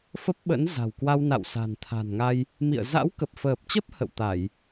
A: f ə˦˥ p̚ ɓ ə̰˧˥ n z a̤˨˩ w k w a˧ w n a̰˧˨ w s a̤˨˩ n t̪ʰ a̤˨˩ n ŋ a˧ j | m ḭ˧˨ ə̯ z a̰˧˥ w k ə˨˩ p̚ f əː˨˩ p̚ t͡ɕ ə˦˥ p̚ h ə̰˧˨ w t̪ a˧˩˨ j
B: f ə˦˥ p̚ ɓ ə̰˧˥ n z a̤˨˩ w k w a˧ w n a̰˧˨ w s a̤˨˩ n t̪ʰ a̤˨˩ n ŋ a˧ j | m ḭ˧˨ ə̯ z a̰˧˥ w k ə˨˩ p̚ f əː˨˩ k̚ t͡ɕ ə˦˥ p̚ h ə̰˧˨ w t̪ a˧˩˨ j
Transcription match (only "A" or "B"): A